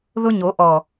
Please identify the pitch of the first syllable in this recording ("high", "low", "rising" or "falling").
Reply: high